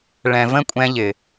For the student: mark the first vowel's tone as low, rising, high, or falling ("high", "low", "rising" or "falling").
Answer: low